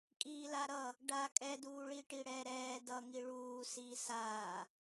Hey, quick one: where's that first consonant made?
velum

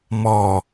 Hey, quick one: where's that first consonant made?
lips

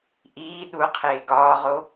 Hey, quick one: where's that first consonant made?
throat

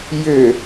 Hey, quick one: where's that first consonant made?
palate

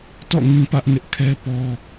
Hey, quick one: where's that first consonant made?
tongue tip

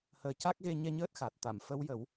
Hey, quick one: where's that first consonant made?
throat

